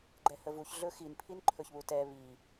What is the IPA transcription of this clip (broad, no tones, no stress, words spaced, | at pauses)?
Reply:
ɡ͡ǃɛhəvuç ɮɵxin pʰinǃʰɵçβutɛ βi